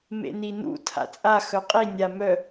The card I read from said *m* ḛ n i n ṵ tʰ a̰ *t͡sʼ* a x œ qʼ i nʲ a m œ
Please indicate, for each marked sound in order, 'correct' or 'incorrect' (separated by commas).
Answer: correct, correct